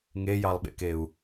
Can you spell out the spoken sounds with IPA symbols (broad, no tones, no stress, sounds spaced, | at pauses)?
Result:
ŋ e j ɑ lˠ ɓ ḛ k e u̯